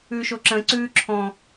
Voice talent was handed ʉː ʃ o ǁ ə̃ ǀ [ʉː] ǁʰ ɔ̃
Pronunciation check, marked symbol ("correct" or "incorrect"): correct